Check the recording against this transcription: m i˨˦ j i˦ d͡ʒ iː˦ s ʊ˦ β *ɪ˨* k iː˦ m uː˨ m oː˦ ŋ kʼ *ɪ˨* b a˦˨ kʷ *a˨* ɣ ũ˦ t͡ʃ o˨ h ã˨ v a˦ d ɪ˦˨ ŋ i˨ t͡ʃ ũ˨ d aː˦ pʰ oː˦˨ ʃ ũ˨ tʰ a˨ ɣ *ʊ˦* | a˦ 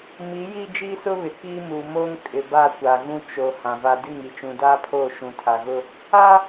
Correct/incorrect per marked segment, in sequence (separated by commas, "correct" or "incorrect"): correct, correct, correct, correct